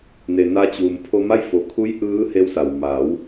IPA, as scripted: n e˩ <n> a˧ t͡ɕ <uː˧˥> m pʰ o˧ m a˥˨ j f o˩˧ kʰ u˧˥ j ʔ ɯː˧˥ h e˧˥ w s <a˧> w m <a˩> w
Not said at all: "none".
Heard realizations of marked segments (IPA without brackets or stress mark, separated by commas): n, uː˩, a˩, a˩˧